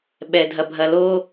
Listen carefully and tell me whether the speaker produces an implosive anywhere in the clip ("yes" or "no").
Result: yes